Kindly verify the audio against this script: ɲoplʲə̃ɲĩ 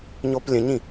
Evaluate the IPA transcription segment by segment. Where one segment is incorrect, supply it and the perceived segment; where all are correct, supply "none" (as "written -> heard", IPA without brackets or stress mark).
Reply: none